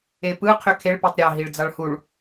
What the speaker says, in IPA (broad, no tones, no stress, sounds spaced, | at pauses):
e p ɯ qʰ ø kʰ e ɭ p e tˤ ɾʲ ɑ ɦ i ɭ d͡z ɑ ɭ h u ɭ